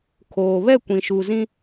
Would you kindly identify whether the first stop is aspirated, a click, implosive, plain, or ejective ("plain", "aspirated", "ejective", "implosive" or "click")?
aspirated